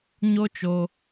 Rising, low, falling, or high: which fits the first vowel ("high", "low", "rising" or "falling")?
high